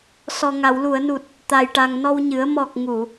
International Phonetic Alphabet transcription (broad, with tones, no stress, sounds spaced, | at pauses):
s ɔ˨˩ ŋ a˨˩˨ w l u˨˩˨ ə̯ n u˨˩ t̚ | t̪ a˨˩ j ʈ a˨˩ ŋ n ɔ˧ w ɲ ɨ˨˩˦ ə̯ m ɔ˨˩ k̚ ŋ u˨˩˨